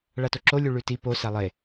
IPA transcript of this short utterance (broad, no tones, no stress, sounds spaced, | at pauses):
ɭ a t o ǁ o lʲ u ɭ ʉ t i p o s a lˠ e